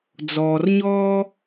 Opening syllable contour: low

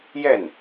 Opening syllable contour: falling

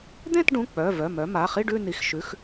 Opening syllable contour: falling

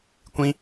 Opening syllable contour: high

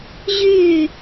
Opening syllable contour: falling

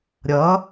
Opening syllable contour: rising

